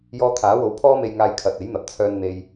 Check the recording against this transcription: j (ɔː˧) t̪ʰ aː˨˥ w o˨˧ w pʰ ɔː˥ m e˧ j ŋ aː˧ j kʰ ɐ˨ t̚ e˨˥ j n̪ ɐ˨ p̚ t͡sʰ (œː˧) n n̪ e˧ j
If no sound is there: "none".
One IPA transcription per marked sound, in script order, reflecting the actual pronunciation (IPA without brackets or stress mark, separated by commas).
ɔː˧, œː˧